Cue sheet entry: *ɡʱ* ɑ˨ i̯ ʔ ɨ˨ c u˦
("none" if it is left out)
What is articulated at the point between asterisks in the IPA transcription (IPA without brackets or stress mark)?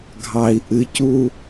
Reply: ɡʱ